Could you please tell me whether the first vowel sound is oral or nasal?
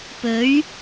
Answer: oral